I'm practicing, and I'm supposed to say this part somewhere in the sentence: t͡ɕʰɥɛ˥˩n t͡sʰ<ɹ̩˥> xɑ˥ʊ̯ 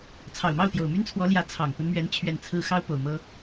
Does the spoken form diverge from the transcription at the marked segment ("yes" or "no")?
no